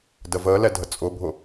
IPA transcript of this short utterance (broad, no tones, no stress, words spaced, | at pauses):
dəvəːlɛ dʱət͡sʼʊbʱʊ